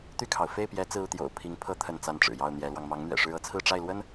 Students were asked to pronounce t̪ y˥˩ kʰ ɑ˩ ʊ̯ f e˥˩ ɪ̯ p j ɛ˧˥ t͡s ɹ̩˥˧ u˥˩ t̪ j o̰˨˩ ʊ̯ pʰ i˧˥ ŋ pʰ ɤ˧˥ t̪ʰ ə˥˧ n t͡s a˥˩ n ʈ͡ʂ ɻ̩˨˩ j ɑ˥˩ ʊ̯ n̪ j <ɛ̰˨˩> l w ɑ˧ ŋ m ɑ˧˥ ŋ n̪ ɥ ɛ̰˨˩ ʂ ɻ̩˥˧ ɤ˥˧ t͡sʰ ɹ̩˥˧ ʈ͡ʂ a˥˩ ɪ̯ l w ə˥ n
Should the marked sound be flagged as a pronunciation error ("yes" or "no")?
yes